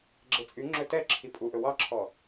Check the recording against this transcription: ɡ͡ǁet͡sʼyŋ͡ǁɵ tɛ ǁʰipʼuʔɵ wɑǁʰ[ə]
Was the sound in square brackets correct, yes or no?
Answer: no